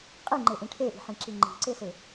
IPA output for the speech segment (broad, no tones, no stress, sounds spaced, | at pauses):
qʼ i ŋ͡ǃ e ʔ ĩ ʈʰ e ʔ i̤ ħ ĩ ǁ i ŋ͡ǃ i̤ ǀ e s e